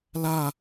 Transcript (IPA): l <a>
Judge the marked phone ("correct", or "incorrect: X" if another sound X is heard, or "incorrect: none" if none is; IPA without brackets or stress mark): correct